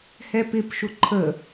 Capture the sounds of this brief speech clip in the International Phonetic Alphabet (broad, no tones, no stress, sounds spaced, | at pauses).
h ɛ p ɪ p ʃ ʊ ǃʰ ə